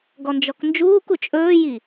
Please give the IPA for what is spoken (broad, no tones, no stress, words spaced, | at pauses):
ɡɔnd͡ʒɔknd͡ʒuːku t͡ʃʼɵːji